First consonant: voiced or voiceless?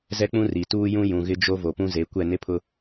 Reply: voiced